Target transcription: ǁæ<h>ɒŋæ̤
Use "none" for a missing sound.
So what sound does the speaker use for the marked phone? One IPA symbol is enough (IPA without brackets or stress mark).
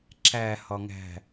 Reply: h